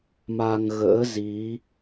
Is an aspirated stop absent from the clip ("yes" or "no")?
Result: yes